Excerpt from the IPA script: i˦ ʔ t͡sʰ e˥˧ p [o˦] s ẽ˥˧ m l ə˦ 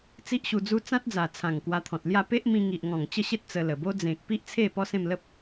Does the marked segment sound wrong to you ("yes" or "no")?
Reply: yes